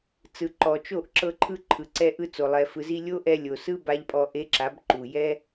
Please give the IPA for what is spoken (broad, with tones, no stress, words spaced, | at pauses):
t͡sɯ˨ǃɔ˨ t͡ʃo˦˨ʔǁɤ˧ ǃʰɯ˧ ǃʰɯ˨ǀɛ˧ʔɯ˧t͡so˨ lˠɛ˨fɯ˨zi˧ lʲo˦ ʔɛ˧lʲo˨sɯ˦ ba˦ʎpʼɔ˧ ʔe˦ǁa˨˦b ǃu˨jɛ˦